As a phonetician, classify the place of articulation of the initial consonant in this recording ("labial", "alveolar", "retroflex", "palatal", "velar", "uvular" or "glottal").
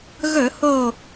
velar